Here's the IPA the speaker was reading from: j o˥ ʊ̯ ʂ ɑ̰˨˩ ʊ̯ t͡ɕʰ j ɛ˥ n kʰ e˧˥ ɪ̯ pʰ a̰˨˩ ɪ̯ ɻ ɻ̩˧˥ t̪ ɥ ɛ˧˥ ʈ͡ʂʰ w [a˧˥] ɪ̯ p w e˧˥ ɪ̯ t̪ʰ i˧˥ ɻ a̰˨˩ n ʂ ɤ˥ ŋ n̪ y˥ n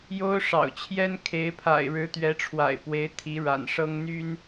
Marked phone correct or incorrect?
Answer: incorrect